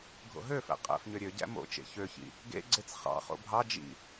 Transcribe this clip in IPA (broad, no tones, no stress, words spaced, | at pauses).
ɡʱo̰ɦøfæ̰ qʼæ̰fɲø ɾʲøɟæ̰ mo̰t͡ʃḛ çøçḭ | ɡḛɡ͡ǀet͡s χɑ̰χo̰ bʱɑ d͡ʒḭ